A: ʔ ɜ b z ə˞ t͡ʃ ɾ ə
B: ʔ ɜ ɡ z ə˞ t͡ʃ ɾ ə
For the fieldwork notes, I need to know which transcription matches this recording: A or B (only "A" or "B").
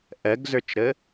B